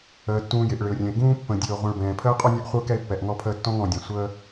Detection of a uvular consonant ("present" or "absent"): present